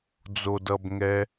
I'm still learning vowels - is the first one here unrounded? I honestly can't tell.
no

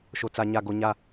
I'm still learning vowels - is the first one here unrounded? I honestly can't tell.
no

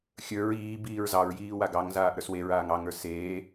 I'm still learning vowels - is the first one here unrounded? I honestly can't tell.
yes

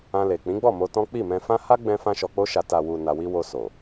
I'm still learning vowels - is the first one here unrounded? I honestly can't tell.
yes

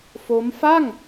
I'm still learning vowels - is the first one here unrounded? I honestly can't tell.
no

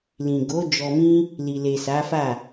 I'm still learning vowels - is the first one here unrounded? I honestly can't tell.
yes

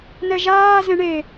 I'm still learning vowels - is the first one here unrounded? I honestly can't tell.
yes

